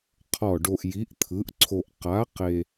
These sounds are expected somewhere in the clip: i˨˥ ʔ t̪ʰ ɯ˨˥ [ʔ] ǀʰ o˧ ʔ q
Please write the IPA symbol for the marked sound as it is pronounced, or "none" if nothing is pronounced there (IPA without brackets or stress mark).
ʔ